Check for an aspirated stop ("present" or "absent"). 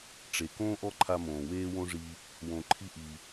present